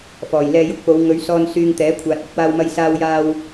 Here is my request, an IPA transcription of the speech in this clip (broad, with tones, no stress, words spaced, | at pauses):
fɔː˨˩jlɛː˧jʊ˥k̚po˨˧w ŋɵ˨˧ɥsɔː˧n syː˧ŋt̪ɛː˨˥kʷʰaː˨t̚ ɪ˨˥k̚waː˧wmɐ˧j saː˧wjaː˧w